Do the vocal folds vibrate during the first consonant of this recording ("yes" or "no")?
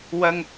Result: yes